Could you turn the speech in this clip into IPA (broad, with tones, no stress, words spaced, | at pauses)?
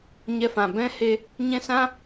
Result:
ɲɛ˧fã˨ bɛ̃˦he˧ | ɲɛ̃˦sã˦